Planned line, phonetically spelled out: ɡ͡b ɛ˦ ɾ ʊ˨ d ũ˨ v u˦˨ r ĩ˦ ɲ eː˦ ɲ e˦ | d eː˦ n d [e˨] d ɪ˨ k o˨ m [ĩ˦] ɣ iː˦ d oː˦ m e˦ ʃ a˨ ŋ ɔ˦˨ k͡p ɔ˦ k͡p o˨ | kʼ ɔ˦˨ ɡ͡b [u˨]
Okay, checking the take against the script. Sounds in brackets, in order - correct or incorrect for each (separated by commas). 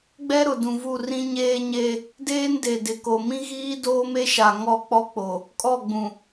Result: correct, correct, incorrect